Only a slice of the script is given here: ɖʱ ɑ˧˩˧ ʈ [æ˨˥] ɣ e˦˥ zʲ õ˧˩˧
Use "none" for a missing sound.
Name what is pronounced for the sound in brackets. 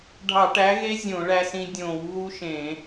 æ˨˥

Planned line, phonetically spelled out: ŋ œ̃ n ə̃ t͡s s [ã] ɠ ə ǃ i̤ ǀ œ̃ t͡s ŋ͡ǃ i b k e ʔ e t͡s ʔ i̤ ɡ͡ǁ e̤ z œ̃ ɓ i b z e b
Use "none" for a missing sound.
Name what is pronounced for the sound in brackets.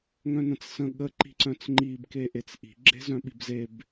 ə̃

